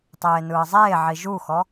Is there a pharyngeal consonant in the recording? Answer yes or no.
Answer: yes